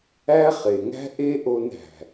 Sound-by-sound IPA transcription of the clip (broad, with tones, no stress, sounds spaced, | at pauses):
æ˦ χ e˨ ŋ æ̤˦ ʔ e˦ ʔ o˧ n æ̤˨